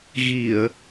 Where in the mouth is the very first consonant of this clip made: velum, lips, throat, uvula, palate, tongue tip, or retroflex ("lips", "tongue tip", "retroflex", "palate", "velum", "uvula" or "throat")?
velum